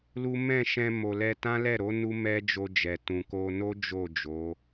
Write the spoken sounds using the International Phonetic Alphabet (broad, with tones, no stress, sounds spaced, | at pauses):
l u˦ m ɛ̃˦˨ ʃ ɛ̃˧ m o˨ l ɛ˧ t ã˦ l ɛ˦˨ ɾ o˨˦ n u˦ m ɛ˦ d͡ʒ o˧ d͡ʒ ɛ˨ t ũ˨ k o˧ n o˦ d͡ʒ o˦˨ d͡ʒ o˨˦